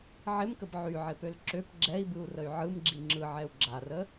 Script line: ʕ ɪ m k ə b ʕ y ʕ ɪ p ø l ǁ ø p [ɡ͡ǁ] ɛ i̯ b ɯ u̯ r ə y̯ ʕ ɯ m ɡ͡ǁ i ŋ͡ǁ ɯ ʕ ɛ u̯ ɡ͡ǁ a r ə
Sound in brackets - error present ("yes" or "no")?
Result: no